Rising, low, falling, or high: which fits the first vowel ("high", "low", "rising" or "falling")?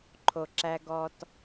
low